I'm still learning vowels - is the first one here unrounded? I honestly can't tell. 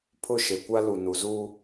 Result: no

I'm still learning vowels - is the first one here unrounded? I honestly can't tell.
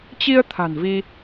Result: yes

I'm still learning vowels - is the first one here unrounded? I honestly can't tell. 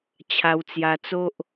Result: yes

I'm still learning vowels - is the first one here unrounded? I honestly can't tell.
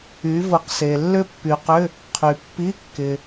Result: no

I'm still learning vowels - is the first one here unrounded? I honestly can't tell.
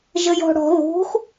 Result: yes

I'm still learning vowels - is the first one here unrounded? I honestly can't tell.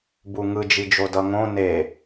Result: no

